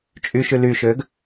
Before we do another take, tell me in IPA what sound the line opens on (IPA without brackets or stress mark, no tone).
t͡ʃʼ